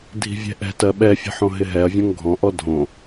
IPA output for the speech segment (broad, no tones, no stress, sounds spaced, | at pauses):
dʱ i̤ vʲ ɛ̤ ʔ ɛ̤ t ɜ ɓ ɛ fʲ ɛ̤ ħ õ ɦ ɪ ɦ ɛ ɐ̯ vʲ ɔ̃ ŋ ɡʱ ɔ̃ ʔ ɔ dʱ õ